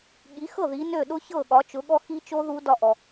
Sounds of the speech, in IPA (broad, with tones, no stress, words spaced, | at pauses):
ɠi˨˥xɤ˥˩ ði˨˥ nø˥˩ɗʊ˦˥ çɤ˥˩ɠɒ˨˥ t͡ʃʊ˨˥ɠɔ˦˥xi˦˥t͡ʃo˦˥ ðu˦˥ dɒ˥˩ʔɔ˨